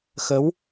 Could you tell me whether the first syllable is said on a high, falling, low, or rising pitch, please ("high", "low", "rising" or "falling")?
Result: rising